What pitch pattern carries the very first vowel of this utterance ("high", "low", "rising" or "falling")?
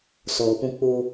low